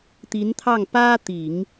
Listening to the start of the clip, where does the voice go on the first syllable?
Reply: rising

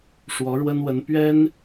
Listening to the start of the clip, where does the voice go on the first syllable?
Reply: rising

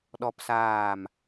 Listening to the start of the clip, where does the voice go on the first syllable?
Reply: high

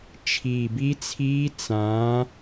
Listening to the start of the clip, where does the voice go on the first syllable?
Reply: low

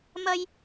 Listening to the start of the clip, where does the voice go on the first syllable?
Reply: high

